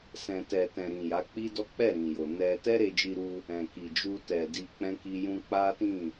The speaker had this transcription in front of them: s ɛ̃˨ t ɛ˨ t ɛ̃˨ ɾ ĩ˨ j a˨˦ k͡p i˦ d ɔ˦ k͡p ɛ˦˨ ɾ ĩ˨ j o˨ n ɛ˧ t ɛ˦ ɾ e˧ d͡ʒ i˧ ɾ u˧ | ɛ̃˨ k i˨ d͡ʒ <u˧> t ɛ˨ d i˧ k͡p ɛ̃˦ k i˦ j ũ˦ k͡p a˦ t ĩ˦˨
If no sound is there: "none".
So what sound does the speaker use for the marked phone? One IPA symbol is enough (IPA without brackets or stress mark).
u˧